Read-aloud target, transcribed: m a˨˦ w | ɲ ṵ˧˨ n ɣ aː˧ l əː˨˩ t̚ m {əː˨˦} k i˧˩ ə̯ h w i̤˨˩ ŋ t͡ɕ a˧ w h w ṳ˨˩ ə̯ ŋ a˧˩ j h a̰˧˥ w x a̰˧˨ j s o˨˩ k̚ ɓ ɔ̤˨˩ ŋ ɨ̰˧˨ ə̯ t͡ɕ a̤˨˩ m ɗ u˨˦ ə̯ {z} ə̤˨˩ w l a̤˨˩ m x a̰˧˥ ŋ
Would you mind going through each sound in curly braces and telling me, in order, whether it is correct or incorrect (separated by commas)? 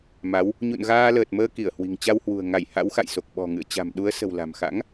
incorrect, incorrect